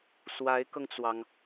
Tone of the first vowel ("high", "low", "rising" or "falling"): rising